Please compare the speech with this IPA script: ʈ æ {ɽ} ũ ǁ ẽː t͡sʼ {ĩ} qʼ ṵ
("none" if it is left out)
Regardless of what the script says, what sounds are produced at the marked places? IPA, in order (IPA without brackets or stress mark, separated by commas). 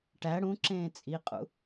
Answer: ɽ, i